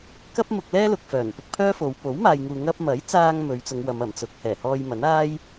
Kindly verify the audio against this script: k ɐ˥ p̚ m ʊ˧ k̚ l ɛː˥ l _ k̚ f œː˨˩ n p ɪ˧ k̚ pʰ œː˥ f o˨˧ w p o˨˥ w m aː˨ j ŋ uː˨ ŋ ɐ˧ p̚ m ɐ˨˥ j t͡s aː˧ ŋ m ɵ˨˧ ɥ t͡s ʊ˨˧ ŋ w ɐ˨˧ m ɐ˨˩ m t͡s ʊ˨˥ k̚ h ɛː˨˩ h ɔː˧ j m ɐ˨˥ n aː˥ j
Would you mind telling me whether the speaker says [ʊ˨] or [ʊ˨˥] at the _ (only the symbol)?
ʊ˨